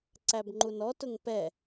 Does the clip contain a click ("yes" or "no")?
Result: yes